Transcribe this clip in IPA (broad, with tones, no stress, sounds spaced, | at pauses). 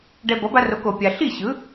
ɖ ɛ˧ b ʌ˩˥ b a˧ r o˩˥ k o˩ pʲ a˩ ɬ i˥˩ ɕ ɯ˩˥